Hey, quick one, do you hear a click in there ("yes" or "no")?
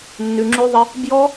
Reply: yes